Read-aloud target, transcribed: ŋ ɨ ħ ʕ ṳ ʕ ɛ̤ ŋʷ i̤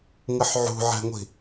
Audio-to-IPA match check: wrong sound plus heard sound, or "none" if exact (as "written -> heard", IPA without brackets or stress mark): none